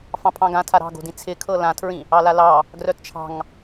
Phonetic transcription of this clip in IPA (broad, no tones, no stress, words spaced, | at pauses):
fɑ̃pʰɑ̃ɡã tʰaɾɑ̤ɡo̤dĩ t͡sʰɪkʰɤ lãtʰɹĩ | ɑlalɑ | ɡrœtt͡ʃʰɑ̤ŋ